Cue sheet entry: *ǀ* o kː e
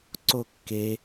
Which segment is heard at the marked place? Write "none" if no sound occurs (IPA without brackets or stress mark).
ǀ